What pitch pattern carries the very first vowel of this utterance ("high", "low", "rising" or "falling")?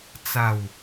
falling